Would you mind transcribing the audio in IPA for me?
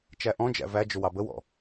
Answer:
t͡ʃæʔɔ̃d͡ʒæ̰ væd͡ʒʊ wɑbəwɔ̰

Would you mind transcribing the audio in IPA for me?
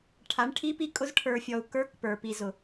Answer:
ʈʰa˨˦ɳʈʰi˦pi˦kʼʊ˦z ʈʰə˞˨fʲɔ˨u̯ kə˞˦kpə˞˨ pi˨zʊ˨

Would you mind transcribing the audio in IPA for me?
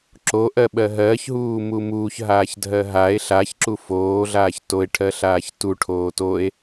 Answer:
ǁoʔɜ ɓɜɦɜːçɦuː mumuːçɦaːçdʱɜ ɦae̯ ɬaçǁu foːɮaːç toe̯ʈʰɜɬaːç tu ʈʰoːtoe̯

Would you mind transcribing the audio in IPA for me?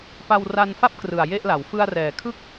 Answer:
pa˧wra˧nfa˥˩p̚ krɯ˨˩a̯je˥˩ʔla˩˦w fɯ˧a̯rɛː˩˦kʰɯ˥˩k̚

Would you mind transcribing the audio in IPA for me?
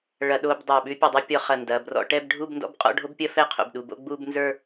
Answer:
ɭɐ˧˩˧ɗo˧b dˤə˞˧˩ɓʉ˥pʲɐ˧dˤɐ˥ pʲɔ˧χɐ˧˩ndɐ˩˧˩ brɔ̰˧ʈɛ˥˧bɖʱu˥˧b ndɔ̰˥bqʼɔ̰˥˧ ɖʱo˥bpʲɐ˥ fɛ˥˧qʰo̰˩˧˩bɗu˩˧˩ bo̰˥˧ɡ͡bu˥˧bnzə˞˥˧

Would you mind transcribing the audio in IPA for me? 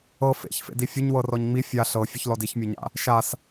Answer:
ɤ fḛçfḛdi fʲʊɲwɤrɔɲ ŋ͡mi fʲa ɬɤfʲʊçlɔd içmʲɔɲa̰ | ʃas

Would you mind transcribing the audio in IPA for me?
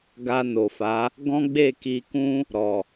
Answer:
ɡa˧no˨fa˨˦ | ɡɔ̃˦ɡ͡be˦˨ki˧kũ˦ | ɾɔ˨

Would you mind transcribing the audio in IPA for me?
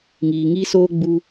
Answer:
ŋiː˨ ŋiː˦soː˦ɡ͡bu˧

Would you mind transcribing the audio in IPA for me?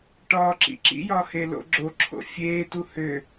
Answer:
ʈɒːǁḭǁḭjɒ helo̰ɡ͡ǁoǁʰo̰ fʲeːtu hø

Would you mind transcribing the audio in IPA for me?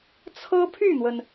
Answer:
t͡sʰɤ˥pʰy˥˩n̪wə˩n

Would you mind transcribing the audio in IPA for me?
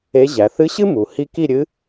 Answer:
e˧˥ʑæ˩˧ θɨ˧˥ɕɨ˥ mu˩˧ hi˥ ki˥˧ɾʲɨ˧˥

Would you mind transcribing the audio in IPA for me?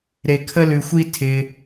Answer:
ɾe˧kʰə˦lʉ˧xʷi˦ tʰɪ˧

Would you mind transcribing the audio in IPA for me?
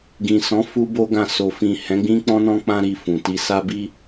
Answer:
ɡĩ˨sɔ̃˨˦ fu˦bo˦ɡã˦˨ so˨fĩ˨ hɛ̃˨˦ɡ͡bĩ˦k͡pɔ̃˦nɔ̃˦ k͡pã˦ ɾi˧fũ˨ ti˧sa˦bi˦

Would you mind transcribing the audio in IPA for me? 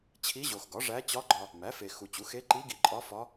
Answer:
t͡ɕʰi˧˥ʑo˨xɡɒ˩˥ʐæ˧˥ t͡ɕɒ˧˥ɡ͡ǃɒ˨ | mæ˩˥fe˨ xu˨t͡ɕu˩˥ xe˧˥ǃi˧˥ɡi˨ǃʼɒ˧˥ fɒ˧˥

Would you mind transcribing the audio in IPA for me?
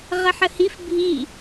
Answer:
ʁəħəhif bʱi

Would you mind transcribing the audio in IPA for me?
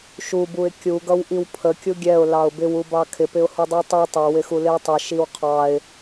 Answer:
ʃubuɪ̯ kʲuɡʌwʔiw pʰəkʲu ɡʲɛʊ̯lɑʊ̯ bɪwubɑ kʰɪpɪʊ̯hudˤu tˤi tˤʌwɪxulɪw tˤəʃiw qʰɑɪ̯

